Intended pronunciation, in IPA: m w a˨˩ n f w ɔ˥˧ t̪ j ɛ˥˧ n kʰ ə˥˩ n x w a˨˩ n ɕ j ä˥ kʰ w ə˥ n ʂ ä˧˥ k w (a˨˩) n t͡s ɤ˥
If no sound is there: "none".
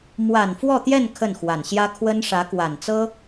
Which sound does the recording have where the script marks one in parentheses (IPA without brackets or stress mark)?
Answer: a˨˩